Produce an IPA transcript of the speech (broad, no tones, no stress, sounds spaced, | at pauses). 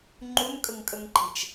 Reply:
ŋ͡ǃ u n kʼ ə ŋ kʼ ə ŋ ǃ e̤ t͡ʃ